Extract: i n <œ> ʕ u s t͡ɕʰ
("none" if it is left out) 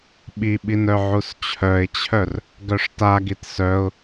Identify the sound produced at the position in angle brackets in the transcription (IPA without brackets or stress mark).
œ